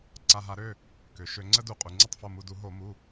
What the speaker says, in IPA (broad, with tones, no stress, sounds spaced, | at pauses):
ǀ a˩˧˩ ɦ a˧˩˧ ɾ ø˩˧˩ | k ø˩ ʃ ø˧˩˧ ŋ͡ǀ ə˥ d u˧˩˧ qʼ u˩ ŋ͡ǀ i˦˨ tˤ f o˩˧˩ m u˩˧˩ d u˧˩˧ ɦ o˧˩˧ m u˩˧˩